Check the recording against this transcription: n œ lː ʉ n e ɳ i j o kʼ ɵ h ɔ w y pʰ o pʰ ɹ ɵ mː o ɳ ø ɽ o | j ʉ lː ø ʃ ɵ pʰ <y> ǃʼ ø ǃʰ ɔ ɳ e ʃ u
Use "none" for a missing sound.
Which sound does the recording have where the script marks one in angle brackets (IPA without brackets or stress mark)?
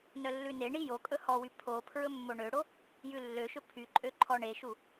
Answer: y